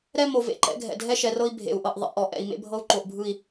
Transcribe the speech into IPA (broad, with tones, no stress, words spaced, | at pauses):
ɾɛ˦mo˨ vḛ˦ǃɛ̰˦ɡʱɛ̰˨ dʱɛ˦ʃɛ˨rɤ˦i̯ bʱḛ˨u̯ʔɤ˨ʔ ðˤḛ˨ʔɔ˨ʔɛ̰˨i̯ mḛ˦bʱɤ˦u̯ ǃo˨ʔbʱɯ˦˨i̯